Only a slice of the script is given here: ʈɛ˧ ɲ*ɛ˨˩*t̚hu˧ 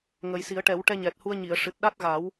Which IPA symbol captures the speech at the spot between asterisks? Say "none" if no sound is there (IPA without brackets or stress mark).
ɛ˨˩